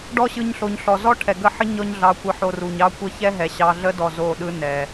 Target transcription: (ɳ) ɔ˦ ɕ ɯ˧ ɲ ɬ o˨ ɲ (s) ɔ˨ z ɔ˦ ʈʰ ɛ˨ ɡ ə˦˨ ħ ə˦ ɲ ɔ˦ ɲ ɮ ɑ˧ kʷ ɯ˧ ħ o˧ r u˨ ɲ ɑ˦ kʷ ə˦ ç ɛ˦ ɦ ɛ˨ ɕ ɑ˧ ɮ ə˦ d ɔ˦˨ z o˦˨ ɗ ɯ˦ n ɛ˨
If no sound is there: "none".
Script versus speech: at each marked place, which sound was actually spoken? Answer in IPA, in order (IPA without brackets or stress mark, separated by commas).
ɖ, ɬ